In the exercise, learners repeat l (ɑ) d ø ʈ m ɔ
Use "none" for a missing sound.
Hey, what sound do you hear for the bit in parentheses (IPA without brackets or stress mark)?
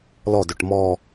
ɔ